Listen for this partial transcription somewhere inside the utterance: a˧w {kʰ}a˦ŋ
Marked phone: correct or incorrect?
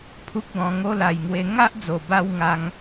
incorrect